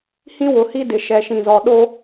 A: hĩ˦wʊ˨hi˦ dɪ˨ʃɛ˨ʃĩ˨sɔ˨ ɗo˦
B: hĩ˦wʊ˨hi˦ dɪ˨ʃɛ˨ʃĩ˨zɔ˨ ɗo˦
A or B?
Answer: B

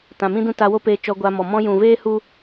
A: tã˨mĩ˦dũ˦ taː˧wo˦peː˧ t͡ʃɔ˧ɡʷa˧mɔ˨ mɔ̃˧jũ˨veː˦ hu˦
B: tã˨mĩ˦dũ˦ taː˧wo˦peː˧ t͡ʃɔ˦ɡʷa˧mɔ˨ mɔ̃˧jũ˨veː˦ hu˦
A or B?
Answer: A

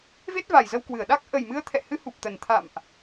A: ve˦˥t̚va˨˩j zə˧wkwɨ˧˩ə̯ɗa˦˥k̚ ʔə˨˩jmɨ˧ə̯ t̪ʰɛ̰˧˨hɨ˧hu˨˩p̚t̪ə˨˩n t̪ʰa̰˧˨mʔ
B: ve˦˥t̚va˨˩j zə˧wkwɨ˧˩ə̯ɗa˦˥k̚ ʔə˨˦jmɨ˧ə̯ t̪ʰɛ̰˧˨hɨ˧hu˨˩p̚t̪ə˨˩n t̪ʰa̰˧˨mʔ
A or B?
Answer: A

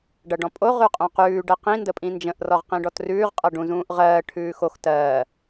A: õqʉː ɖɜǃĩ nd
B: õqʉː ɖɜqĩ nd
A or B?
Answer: B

